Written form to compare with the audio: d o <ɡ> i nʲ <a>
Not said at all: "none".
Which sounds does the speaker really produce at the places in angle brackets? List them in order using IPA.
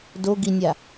ɡ, a

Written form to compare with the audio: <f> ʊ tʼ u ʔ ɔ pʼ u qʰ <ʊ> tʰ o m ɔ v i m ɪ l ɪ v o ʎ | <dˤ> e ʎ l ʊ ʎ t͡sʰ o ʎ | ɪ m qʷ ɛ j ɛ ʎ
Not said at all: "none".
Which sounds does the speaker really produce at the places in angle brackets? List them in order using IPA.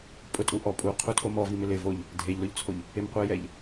pʼ, u, dʱ

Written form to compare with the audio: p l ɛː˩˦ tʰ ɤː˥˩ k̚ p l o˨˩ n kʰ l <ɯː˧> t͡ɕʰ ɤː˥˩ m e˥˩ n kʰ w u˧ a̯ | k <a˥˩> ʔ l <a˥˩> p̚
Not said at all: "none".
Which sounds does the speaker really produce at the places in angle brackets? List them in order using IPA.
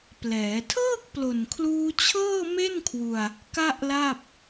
uː˧, a˥˩, a˥˩

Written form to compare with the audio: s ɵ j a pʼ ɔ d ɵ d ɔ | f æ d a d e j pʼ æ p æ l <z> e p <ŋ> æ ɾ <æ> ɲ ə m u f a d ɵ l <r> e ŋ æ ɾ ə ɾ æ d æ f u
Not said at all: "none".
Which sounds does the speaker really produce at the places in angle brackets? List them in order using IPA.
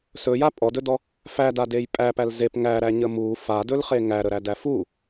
z, ŋ, æ, χ

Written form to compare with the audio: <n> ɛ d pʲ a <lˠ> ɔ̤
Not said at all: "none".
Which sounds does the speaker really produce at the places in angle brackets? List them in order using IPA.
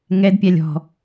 ŋ, lʲ

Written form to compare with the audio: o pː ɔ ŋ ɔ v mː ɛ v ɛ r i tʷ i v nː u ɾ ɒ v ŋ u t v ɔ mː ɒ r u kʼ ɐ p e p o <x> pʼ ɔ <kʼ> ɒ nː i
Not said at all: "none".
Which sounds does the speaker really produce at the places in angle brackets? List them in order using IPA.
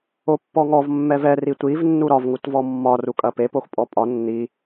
x, pʼ

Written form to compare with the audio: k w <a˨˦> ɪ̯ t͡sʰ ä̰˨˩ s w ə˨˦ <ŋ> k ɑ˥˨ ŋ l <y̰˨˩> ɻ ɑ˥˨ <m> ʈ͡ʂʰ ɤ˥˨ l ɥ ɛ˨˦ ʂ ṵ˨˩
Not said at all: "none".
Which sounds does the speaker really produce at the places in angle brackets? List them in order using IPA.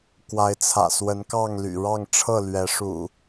a˨˦, n, y̰˨˩, ŋ

